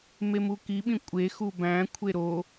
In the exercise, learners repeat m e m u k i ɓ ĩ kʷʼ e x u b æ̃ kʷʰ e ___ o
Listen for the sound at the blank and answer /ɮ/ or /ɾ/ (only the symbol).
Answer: ɾ